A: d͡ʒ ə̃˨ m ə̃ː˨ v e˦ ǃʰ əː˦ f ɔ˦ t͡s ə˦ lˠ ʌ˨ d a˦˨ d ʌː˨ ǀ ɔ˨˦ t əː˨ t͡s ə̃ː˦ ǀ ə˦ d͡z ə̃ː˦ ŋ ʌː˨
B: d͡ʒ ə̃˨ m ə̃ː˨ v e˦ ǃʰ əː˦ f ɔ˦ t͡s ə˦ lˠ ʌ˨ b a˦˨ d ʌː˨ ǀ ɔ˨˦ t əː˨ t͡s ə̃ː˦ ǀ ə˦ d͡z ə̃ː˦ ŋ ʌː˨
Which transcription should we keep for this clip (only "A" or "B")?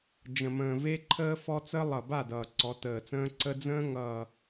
B